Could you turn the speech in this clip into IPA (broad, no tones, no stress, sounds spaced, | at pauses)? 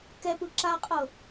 k ɛ p ɯ ǁ a qʼ ɤ